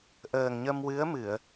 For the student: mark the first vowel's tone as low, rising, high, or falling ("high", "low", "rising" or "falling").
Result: low